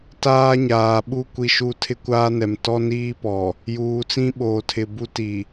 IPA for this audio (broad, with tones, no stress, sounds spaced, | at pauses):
t aː˦ ɲ aː˨ ɓ u˦˨ kʷ i˦ ʃ u˦ tʰ ɪ˦ kʷ aː˦ n ɛ˨ m t ɔ˦ n iː˦ p ɔ˨ | j uː˨ t͡s ĩ˦ ɓ oː˨ tʰ ɪ˨ b u˦ t i˨